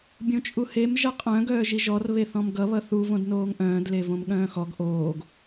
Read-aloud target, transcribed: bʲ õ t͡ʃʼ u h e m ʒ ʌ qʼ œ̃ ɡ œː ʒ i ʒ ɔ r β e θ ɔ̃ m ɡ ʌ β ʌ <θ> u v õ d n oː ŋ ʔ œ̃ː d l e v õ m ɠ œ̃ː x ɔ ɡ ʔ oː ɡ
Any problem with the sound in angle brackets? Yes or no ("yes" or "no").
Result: no